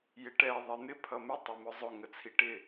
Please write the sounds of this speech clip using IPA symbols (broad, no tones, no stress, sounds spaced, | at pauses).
j ɪ ʈ ɛ ðˤ ɪ n̪ ɪ pʰ ʌ m ɪ tˤ ɛ m ʊ zˤ ʊ ŋ ə t͡sʰ i ʈ ɪ